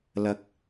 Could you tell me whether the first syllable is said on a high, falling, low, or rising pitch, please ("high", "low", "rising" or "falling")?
rising